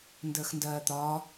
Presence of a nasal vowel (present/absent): absent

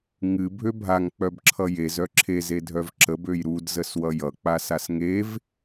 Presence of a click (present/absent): present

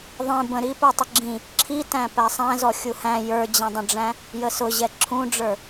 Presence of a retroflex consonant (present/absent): present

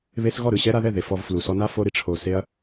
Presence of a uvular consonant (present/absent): absent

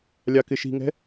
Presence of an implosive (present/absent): absent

